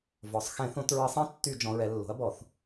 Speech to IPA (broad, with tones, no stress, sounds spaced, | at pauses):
v ɔ˩˧ sˤ x ɛ̃˧˩˧ θ õ˧˩˧ t ɹ ə˧˩˧ sˤ ɛ̃˦˥ tː y˧˩˧ d͡ʒ ɔ̃˩˧ ɹ ɛ˩˧ lː o̤˩˥ ɐ̯ b ɔ˧˩˧ θ